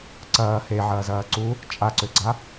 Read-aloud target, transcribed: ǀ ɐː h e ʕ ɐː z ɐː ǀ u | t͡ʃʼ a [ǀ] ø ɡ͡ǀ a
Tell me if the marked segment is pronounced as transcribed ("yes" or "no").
yes